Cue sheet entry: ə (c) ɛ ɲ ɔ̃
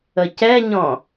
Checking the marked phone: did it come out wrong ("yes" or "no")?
no